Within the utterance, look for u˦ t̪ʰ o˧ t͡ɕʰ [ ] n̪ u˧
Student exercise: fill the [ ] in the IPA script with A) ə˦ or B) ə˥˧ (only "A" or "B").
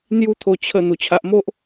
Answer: B